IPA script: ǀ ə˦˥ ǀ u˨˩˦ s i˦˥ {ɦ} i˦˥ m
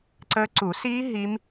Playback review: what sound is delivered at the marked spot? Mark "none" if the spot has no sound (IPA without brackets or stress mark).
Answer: ɦ